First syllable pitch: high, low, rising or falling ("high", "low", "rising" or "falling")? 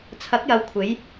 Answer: rising